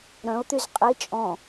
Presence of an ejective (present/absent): present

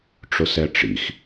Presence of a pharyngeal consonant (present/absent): absent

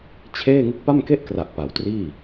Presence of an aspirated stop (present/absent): present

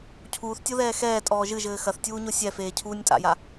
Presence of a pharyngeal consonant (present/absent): absent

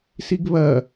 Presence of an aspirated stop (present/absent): absent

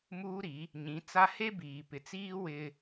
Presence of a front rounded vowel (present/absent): absent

